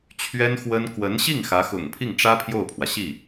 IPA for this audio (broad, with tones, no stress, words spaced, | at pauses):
t͡ɕʰɥɛ˥n xwə˥n kwə˧˥nɕi˥˩ŋ xä˧˥xʊ̰˨˩ŋ pʰi˥˩ŋʈ͡ʂä˥ pʰjo˥˩ʊ̯pʰwä˩ɕi˥˩